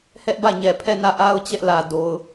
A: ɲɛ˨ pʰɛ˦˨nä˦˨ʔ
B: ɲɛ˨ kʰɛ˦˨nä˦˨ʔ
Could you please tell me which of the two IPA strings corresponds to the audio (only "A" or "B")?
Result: A